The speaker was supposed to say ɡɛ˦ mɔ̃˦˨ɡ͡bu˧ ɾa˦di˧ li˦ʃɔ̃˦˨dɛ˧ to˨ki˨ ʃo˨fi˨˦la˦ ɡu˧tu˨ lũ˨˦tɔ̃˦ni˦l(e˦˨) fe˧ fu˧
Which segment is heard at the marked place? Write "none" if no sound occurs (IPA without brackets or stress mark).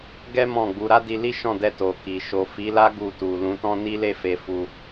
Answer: e˦˨